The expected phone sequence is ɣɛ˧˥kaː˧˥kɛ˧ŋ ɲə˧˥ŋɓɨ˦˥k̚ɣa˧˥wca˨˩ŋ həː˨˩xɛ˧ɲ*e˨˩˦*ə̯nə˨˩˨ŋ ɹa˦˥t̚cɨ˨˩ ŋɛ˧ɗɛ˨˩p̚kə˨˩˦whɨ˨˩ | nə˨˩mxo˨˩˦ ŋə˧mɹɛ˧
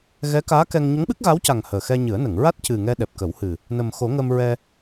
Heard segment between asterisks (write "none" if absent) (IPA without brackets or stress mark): ɨ˨˩˦